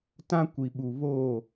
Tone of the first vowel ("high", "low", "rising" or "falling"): high